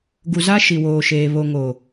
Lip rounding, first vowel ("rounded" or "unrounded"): rounded